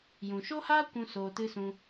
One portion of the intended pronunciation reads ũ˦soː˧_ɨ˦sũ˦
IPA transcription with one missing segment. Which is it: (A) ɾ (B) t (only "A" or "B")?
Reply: B